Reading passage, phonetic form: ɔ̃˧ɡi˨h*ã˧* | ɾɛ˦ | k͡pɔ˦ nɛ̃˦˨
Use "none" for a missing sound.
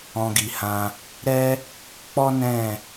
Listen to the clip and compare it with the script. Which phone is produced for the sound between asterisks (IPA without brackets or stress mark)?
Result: ã˧